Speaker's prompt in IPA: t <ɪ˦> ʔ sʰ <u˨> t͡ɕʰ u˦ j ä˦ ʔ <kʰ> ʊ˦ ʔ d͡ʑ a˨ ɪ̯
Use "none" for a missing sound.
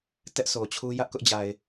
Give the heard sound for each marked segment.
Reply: ɛ˦, o˨, k

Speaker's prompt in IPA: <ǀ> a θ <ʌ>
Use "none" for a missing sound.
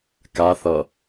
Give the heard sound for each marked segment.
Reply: k, ʌ

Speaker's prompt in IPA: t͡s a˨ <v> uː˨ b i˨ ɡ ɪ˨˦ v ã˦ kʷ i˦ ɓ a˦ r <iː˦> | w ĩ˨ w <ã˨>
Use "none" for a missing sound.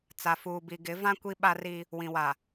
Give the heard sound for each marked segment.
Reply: f, i˦, a˨

